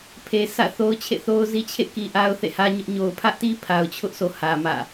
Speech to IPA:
pʰ e˨ sʰ ä̰˦˨ θ o˦ ʊ̯ t͡ɕʰ ḛ˦˨ θ o˦ ʊ̯ z i˦ t͡ɕʰ ḛ˦˨ k i˨ ʔ a˦ ʊ̯ θ ḛ˦˨ h ä˦ ɲ ʊ˦ ʔ ɲ o˨ ʊ̯ pʰ ä˦ ʔ t i˦ pʰ a˨ ʊ̯ t͡ɕʰ ʊ˦ ʔ s o˨ h ä˨ m ä̰˦˨

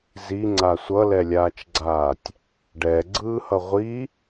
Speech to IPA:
z i ŋ͡ǀ a sʷ ʌ l ɛ lʲ aː t͡ʃ ɡ͡ǀ aː tʲ | ɖ ɛ ɡ͡ǀ ɯː h ʌ ʁʷ i

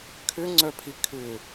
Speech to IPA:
kʰ ʏ ŋ͡ǀ œ pʰ i kʰ ʏ

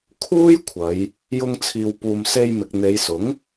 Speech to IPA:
kʰ uː˥ j kʷʰ ɐ˨˧ j | j ʊ˧ ŋ t͡sʰ iː˨ w p uː˨ m s e˧ j m ɪ˨ k̚ n̪ e˨˧ j s ʊ˨˥ ŋ

